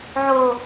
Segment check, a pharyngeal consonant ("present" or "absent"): present